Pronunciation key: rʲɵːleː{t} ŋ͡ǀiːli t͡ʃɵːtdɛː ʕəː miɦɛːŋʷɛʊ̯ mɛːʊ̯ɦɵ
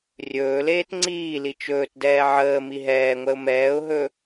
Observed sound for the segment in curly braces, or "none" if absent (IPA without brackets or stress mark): t